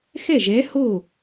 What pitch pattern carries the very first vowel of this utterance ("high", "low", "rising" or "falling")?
falling